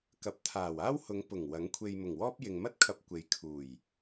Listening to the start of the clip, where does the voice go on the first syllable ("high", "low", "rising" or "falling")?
rising